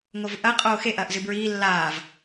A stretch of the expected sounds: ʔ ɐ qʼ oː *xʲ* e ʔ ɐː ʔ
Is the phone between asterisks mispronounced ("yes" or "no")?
yes